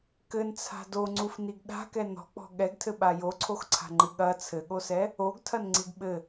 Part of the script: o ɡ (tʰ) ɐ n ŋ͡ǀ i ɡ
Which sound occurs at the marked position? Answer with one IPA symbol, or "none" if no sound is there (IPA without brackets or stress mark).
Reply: tʰ